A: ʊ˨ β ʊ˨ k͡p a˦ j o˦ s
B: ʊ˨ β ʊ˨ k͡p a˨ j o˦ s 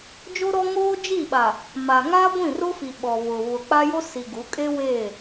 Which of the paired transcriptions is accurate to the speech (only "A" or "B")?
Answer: A